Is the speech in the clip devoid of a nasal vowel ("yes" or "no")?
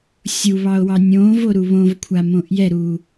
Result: no